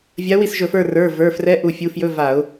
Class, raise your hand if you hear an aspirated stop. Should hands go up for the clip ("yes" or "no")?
no